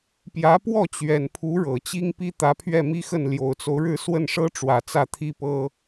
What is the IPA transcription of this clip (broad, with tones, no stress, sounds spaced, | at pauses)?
p j ä˧˥ p w ɔ˥˩ t͡ɕ ɥ ɛ˨˩ n pʰ u˧˥ ɻ ɤ˨˩ t͡ɕ i˥ ŋ p i˥ t̪ ä˧˥ pʰ ɥ ɛ˥˩ m i˥ x ə˥˩ n l j o˨˩ ʊ̯ t͡s o˦ ʊ̯ ɻ ɻ̩˥˧ s w ə˥˩ n ʂ ɤ˥ ʈ͡ʂ w ä˨˩ t͡s ä˥˩ t̪ʰ i˥ p ɤ˥